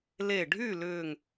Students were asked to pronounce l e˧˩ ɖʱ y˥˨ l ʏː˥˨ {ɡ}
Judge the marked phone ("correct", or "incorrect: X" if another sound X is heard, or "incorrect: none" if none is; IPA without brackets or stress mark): incorrect: ŋ